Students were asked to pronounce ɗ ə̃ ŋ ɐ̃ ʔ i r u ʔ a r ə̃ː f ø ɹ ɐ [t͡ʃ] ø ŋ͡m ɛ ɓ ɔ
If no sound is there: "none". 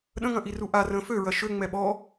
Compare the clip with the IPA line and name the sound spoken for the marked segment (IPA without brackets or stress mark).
ʃ